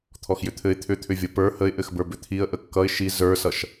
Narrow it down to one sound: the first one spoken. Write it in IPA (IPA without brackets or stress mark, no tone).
t̪ʰ